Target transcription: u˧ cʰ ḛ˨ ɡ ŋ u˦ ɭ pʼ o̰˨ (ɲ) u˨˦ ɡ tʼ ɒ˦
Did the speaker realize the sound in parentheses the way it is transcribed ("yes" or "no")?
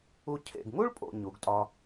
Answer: yes